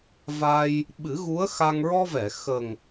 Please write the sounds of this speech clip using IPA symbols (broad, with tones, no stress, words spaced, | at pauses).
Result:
va˧j | ɓɨ˨˩˦ɣu˧˥ə̯xa˧ŋ ɹɔ˧vɛ˨˩˨ xə˨˩ŋ